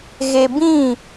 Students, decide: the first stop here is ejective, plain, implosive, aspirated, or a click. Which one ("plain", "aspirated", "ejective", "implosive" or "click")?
plain